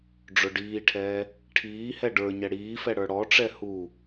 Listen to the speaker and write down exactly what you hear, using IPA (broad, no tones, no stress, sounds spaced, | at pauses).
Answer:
ɖ͡ʐ ʊ ɖ iː ʈʰ ɛː | ʈʰ iː h ɛ ɖ ə˞ ɲ ɛ ɽ iː f ɛ ɽ ə˞ ɽ ɔ ʈ͡ʂ ɛ h u